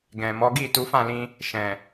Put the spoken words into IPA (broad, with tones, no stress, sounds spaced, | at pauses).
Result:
ɡ ɛ̃˨ m ɔ˨˦ ɡ i˦˨ t u˨˦ f ã˦˨ l ĩ˧ | ʃ ɛ̃˨